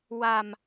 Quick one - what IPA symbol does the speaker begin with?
w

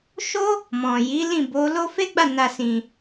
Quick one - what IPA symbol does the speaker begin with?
ʃ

